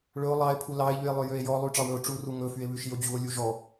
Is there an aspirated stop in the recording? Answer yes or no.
yes